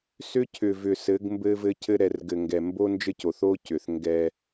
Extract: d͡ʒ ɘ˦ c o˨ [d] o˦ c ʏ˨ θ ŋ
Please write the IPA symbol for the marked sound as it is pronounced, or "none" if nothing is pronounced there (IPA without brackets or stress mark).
θ